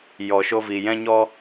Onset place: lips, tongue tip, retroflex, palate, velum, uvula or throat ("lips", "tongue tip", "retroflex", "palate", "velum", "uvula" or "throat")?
palate